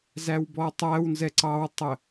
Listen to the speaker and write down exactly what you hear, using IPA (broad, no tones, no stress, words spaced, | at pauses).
zæwbɔtˤæwnzɛ ǀɑwtˤə